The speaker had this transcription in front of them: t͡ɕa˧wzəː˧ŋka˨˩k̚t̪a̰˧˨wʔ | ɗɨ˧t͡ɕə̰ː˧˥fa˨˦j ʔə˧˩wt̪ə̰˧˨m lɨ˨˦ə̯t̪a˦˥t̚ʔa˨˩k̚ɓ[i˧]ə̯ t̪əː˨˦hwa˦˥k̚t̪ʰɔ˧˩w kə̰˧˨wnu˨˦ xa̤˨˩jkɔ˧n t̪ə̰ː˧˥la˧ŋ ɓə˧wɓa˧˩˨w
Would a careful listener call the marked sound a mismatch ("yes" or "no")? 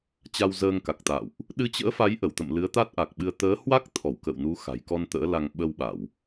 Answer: yes